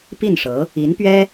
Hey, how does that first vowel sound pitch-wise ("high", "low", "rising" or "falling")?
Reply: falling